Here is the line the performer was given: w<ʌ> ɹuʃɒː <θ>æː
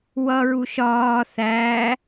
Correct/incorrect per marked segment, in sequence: correct, correct

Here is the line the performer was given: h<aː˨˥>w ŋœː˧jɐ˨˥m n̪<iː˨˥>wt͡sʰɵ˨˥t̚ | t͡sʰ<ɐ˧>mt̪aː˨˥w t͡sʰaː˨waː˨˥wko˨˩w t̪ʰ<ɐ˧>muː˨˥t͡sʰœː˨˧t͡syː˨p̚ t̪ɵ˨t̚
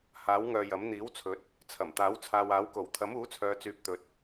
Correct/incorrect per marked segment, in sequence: correct, correct, incorrect, incorrect

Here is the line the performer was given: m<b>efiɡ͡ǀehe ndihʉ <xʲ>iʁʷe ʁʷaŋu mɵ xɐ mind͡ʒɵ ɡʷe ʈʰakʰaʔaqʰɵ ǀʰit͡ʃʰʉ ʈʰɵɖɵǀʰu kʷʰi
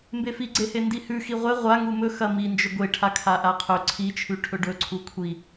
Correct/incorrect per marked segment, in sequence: correct, incorrect

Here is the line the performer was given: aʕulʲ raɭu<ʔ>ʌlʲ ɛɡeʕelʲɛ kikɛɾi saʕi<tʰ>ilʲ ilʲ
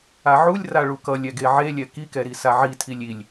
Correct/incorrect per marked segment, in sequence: incorrect, correct

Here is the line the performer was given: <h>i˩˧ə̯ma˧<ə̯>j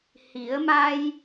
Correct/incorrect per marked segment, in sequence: correct, incorrect

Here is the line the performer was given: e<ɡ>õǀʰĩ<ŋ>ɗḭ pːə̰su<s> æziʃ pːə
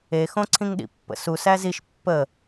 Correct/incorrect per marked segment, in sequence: incorrect, correct, correct

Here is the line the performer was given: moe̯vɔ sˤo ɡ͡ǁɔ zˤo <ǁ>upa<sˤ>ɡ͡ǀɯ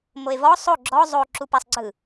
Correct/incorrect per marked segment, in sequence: correct, correct

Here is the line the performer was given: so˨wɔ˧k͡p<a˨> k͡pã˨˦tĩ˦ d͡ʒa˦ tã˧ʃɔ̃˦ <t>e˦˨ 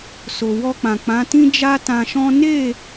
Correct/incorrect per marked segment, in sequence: incorrect, incorrect

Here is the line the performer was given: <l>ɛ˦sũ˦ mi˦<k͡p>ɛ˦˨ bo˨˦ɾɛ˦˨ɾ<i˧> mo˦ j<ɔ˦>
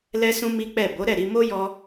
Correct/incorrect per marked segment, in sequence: correct, correct, correct, correct

